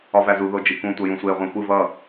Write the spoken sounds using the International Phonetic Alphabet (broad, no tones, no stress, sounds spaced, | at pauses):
ɒ v æ z u ð o d͡ʒ i k ũ tʷ ʌ j ũ sʷ e ʁʷ æ̃ xʷ ɨ v ʌ